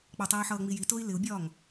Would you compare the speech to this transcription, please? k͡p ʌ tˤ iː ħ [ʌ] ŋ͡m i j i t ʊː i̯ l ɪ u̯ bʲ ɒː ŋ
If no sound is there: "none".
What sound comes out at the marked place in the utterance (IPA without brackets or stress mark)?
ʌː